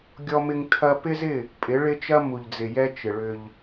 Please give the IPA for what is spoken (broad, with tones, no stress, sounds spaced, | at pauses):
ɡʲ ɔ˦ m ɪ˦ ŋ tʰ ɐ˦ p ɪ˦ z ɪ˦˨ | pʼ ɪ˨˦ ɭ ɪ˦ t͡ʃ ɐ˦ m u˨ ʎ d͡z ɪ˨ j ɛ˦ t͡ʃ ɪ˨ ɭ ʏ˦ ʎ